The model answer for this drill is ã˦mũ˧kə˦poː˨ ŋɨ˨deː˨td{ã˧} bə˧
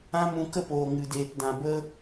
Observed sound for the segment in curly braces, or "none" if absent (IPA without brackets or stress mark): ã˨